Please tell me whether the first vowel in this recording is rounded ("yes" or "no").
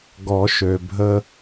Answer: yes